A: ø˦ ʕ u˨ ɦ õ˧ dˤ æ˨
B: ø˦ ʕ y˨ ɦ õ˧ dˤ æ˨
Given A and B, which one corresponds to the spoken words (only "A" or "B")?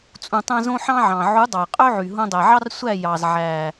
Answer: B